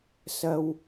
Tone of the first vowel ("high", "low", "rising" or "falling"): high